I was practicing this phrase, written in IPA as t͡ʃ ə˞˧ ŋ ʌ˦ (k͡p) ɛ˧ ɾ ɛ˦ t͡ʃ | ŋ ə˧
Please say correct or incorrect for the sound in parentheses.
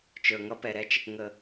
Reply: incorrect